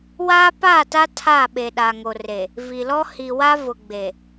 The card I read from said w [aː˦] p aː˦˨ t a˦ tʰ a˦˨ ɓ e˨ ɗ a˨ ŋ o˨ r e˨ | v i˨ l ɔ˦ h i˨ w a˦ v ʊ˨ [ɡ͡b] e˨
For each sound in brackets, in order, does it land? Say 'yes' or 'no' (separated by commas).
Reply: yes, yes